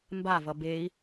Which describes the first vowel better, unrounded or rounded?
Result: unrounded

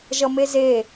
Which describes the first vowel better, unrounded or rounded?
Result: unrounded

